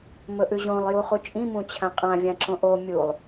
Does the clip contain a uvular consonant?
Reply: yes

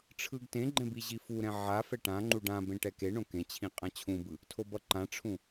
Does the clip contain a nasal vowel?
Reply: yes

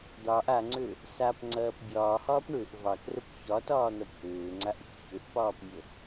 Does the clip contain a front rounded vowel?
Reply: yes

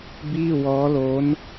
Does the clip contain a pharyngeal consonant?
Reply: no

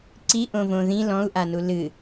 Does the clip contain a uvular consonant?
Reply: no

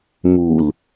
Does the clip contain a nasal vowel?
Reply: no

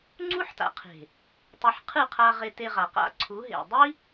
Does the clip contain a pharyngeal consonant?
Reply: yes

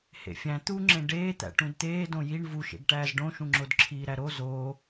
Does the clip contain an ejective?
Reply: no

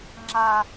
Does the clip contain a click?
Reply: yes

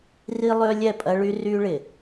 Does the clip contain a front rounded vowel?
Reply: yes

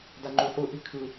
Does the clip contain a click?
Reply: yes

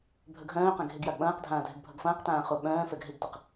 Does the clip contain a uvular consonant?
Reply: yes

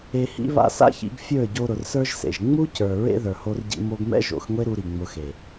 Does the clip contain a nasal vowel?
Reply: no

